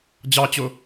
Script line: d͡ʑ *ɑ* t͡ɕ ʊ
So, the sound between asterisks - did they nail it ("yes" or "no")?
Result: yes